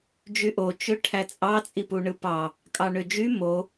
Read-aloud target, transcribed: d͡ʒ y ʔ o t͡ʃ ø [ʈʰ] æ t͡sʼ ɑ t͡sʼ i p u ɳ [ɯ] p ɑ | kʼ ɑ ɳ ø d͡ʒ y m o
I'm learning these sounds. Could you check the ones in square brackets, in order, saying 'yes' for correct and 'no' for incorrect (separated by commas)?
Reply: yes, yes